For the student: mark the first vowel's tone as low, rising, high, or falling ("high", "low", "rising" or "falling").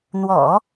low